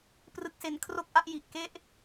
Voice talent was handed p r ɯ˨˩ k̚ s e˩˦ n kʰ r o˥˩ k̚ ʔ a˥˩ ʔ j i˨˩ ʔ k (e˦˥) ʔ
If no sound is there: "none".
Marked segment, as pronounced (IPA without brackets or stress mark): e˦˥